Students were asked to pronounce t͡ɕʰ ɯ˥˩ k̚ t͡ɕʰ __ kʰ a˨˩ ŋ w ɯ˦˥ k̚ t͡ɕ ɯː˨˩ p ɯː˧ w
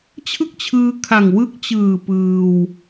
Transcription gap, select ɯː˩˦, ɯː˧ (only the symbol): ɯː˧